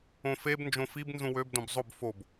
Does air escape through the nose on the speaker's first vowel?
yes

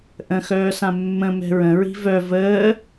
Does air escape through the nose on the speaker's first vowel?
yes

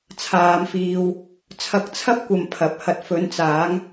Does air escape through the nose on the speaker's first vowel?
no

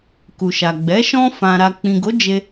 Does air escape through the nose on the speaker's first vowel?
no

